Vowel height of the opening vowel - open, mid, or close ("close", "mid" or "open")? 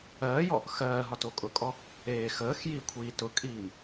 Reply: mid